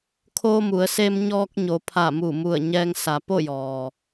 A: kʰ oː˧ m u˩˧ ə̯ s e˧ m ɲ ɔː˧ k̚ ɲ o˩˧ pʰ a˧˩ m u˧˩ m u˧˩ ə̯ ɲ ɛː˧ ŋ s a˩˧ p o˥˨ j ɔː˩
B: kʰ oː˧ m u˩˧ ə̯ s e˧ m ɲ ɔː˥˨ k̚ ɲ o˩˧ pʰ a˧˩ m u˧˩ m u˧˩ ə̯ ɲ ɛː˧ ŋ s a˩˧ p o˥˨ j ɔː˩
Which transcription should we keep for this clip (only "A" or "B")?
A